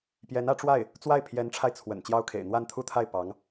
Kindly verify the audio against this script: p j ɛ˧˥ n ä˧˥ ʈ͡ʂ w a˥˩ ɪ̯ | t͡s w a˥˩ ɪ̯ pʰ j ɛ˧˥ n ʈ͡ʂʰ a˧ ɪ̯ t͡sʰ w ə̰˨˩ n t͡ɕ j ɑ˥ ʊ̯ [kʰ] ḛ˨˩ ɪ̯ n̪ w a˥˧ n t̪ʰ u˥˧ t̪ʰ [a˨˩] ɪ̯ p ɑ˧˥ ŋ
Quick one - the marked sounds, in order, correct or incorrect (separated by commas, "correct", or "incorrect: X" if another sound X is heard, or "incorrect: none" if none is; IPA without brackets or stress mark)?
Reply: correct, incorrect: a˥˩